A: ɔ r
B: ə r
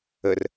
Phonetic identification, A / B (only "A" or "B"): B